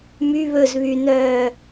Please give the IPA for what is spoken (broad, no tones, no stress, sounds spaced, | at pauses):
m y β ɵ z β y n œː